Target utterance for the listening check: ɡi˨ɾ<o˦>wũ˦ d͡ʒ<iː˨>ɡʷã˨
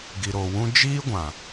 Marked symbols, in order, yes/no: no, no

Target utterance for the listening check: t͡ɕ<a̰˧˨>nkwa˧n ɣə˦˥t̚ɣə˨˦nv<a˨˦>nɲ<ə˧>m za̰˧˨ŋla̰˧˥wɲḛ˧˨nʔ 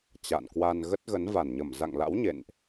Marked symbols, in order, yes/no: yes, no, no

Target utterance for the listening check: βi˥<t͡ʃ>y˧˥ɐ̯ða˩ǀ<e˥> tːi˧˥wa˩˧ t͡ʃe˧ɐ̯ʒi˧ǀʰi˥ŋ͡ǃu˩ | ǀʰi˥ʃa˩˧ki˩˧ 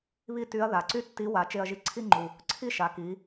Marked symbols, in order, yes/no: no, no

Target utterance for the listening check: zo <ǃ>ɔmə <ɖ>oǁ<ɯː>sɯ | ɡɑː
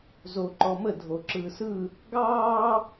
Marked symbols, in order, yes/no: yes, no, yes

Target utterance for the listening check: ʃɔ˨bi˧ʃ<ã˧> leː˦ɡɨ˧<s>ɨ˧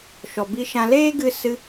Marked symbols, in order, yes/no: yes, yes

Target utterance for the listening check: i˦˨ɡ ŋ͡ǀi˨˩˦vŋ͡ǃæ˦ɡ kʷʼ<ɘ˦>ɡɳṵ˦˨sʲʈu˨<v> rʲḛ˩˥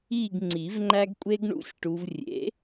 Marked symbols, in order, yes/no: no, yes

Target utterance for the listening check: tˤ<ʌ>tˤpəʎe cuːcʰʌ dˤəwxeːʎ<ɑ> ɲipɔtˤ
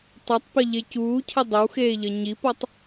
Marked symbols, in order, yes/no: yes, no

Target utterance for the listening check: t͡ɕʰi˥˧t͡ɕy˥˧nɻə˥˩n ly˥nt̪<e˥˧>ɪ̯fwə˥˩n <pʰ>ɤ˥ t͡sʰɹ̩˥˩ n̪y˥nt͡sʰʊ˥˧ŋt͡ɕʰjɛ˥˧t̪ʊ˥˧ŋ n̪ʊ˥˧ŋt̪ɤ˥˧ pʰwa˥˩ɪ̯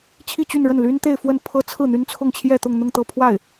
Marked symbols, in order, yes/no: yes, yes

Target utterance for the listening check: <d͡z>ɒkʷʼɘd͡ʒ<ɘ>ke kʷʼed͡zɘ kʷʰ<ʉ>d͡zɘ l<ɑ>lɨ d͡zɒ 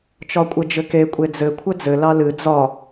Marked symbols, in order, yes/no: no, yes, no, yes

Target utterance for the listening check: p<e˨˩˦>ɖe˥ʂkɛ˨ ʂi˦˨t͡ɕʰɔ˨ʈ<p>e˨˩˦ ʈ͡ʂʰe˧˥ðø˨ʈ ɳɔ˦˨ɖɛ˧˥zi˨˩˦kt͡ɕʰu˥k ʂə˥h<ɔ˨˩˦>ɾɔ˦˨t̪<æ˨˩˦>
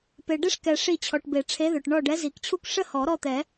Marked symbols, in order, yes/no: no, no, yes, no

